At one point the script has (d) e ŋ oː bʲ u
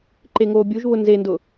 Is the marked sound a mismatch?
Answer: yes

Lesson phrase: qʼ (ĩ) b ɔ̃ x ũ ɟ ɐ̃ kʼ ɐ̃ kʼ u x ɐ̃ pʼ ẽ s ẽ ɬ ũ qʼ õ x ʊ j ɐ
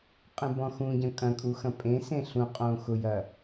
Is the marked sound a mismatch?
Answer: yes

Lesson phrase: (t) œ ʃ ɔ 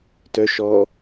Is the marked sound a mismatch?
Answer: no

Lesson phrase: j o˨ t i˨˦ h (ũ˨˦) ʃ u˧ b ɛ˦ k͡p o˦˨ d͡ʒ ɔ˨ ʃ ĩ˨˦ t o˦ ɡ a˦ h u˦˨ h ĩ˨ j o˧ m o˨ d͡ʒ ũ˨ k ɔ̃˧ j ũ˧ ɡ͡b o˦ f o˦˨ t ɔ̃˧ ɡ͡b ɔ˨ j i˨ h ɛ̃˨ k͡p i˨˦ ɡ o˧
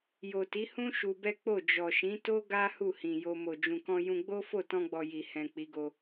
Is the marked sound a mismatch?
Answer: yes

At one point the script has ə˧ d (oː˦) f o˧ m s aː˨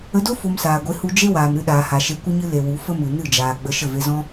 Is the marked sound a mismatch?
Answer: yes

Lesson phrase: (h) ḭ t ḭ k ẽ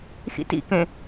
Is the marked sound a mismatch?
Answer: yes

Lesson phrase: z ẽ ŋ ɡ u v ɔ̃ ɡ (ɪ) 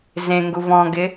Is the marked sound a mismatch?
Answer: no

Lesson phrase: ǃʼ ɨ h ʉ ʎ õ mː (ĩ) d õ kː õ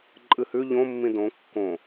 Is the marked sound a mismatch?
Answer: no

